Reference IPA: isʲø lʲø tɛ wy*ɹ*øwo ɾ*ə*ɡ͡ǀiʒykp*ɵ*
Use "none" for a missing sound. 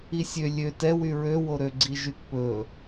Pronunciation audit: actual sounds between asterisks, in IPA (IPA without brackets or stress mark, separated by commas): ɹ, ø, ɵ